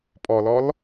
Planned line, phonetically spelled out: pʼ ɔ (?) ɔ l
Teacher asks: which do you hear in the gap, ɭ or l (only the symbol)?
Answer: l